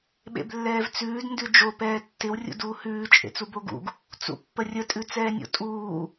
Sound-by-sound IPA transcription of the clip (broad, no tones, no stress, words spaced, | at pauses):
ɓḛblːɛːvt͡sʉːd ndʉd͡ʒo pɛːtːɪw rʲṵduːhʉː t͡ʃʼḛt͡suboɡṵɡ | t͡sṵpːərʲə tʼʉt͡sɛːnʲo̰tʼuː